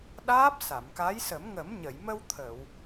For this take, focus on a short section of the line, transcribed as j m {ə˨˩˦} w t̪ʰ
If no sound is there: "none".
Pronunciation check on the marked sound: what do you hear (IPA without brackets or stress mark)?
ə˧